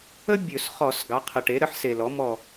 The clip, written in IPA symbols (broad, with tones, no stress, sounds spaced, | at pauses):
ə˥ bʲ ɵ˧˩˧ s χ ɔ˧˩˧ s ɡ ɑ˩˥ qʰ ə˨˩ ʈ e˩˥ ɾ ə˩˥ ħ s e˨˩ l ɔ˩˥ m ɔ˦˨